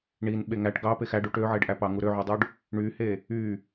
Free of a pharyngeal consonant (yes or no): no